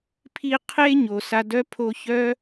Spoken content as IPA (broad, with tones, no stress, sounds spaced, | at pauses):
pʰ i˥ qʰ e˥ ɲ o˨ s a˦ d œ˥ pʰ o˦ ç œ˥